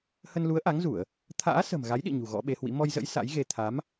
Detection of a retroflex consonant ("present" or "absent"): absent